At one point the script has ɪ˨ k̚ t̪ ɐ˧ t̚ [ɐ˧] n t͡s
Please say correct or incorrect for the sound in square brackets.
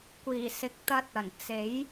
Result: incorrect